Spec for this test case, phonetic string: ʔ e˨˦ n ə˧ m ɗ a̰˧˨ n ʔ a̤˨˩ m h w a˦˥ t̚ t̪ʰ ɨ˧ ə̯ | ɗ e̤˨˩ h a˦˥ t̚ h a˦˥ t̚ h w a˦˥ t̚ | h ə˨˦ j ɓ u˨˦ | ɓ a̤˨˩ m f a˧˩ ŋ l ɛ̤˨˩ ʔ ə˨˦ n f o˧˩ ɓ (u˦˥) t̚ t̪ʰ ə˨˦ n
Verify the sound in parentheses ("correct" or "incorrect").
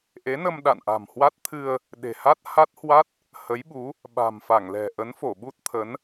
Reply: correct